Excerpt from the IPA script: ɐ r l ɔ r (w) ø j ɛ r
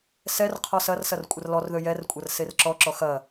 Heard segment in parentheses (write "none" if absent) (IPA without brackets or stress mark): ð